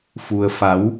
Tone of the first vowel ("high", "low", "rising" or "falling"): low